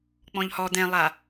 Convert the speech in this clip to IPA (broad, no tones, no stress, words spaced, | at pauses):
k͡pɔ̃ʎhɔ d̪ɛ̃lˠa